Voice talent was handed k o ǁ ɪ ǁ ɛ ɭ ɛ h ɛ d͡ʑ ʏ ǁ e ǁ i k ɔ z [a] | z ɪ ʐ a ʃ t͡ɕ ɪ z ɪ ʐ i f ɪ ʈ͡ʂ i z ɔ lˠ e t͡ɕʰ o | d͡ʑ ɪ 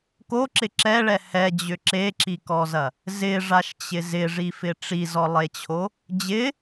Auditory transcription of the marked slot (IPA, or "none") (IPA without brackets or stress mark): ɐ